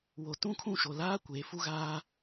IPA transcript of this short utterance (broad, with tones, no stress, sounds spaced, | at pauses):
w o˨ t ũ˦ kʰ ũ˦˨ ʃ o˨ l aː˦ kʷ eː˨ f u˦ ɣ aː˦